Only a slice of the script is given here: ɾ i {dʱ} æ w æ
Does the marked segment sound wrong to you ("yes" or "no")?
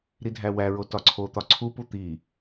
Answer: no